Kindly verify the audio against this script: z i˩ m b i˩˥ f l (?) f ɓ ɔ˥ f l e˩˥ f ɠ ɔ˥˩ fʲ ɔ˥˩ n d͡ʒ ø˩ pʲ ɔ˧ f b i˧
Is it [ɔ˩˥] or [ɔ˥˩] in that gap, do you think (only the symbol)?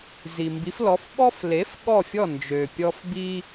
ɔ˩˥